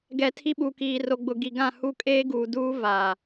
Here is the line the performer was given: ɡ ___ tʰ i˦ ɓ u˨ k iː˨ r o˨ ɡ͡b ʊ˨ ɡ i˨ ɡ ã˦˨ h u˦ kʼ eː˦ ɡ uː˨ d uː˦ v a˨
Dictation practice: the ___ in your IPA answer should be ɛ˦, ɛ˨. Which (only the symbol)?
ɛ˨